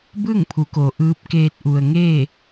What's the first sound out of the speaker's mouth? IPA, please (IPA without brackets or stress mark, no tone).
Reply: b